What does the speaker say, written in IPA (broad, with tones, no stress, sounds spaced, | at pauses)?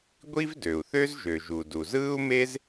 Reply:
ɡʷ i˥ v d ø˩ u̯ θ ø˥ z ʒ ø˩ ʒ u˩ d u˩ z ɯː˥ u̯ m e˥ z